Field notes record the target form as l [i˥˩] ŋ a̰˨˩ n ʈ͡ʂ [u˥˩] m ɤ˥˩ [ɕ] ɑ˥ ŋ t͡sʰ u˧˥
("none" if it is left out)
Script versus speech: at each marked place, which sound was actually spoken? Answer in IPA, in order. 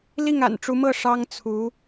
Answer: i˥˩, u˧˥, ʂ

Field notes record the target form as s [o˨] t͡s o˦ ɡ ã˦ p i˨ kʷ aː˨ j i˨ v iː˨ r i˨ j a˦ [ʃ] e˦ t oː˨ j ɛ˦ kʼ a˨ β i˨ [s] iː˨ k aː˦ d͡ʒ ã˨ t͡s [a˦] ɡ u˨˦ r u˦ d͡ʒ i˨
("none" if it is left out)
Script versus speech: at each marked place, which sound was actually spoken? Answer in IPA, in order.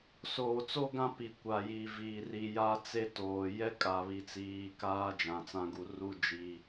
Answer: oː˨, t͡s, t͡s, ã˦

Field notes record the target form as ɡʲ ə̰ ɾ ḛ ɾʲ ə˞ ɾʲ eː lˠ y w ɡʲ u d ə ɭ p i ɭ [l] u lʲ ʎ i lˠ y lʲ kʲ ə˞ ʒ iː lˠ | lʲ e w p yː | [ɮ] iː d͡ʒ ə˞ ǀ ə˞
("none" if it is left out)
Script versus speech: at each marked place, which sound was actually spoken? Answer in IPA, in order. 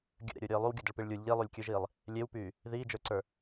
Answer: lʲ, ð

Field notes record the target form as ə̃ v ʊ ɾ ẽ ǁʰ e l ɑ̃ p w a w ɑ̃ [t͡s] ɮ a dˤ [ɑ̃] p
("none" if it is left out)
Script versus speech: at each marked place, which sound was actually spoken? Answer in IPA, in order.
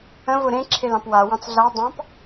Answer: t͡s, ɑ̃

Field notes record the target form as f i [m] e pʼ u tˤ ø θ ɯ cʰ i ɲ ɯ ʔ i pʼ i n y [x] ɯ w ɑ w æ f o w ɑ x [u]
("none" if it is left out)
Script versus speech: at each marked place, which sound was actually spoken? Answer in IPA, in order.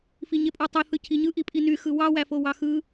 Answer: ɲ, x, ɯ

